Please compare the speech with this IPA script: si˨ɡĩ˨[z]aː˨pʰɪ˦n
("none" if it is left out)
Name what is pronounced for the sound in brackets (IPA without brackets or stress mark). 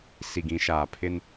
ʃ